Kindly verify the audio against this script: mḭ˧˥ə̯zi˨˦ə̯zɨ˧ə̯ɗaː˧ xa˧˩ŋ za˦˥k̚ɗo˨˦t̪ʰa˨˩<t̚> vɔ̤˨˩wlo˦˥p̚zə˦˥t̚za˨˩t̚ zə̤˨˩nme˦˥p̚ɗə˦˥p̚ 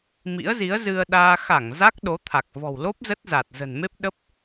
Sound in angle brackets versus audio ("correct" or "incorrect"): incorrect